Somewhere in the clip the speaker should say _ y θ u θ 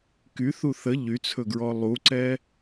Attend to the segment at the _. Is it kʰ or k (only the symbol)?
k